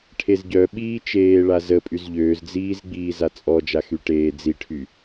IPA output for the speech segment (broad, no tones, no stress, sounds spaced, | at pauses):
ʈʰ e z ɟ œ ɓ iː t͡ʃ eː ɭ a z ə pʼ y z ʎ øː z d͡z iː z ɡ͡b iː z a t͡sʼ ɔ d͡ʒ a x y ʈ eː d͡z i ʈʰ y